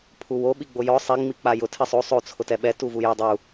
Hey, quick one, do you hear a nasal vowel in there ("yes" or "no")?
no